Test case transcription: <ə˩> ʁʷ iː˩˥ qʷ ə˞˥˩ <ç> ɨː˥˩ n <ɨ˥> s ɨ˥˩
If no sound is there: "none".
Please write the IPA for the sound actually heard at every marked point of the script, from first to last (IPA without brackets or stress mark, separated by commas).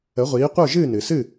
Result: ə˩˥, ʒ, ɨ˩